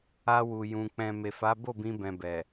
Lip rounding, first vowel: unrounded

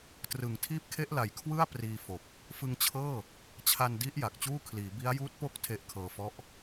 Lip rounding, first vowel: unrounded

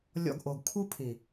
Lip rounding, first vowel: rounded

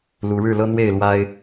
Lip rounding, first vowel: rounded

